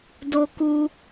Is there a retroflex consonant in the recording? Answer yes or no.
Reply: no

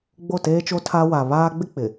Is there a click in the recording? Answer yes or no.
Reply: no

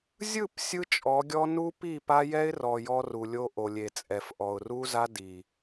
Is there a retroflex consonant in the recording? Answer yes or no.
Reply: no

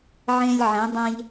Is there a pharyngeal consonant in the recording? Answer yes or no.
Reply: yes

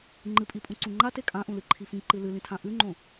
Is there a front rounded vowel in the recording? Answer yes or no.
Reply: no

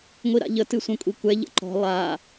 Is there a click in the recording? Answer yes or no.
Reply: yes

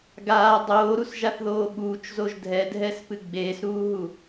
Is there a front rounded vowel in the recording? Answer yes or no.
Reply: no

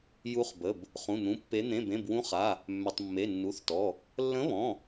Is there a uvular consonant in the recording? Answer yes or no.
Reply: yes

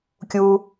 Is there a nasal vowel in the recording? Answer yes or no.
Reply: no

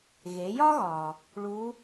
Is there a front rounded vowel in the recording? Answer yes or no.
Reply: no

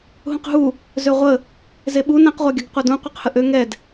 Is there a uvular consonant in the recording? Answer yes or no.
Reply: yes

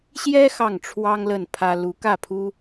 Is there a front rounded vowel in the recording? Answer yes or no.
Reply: no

